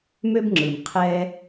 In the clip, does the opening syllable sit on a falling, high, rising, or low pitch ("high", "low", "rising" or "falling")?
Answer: high